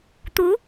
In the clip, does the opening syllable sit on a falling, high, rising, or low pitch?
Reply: rising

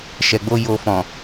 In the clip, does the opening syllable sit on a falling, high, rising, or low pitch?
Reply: low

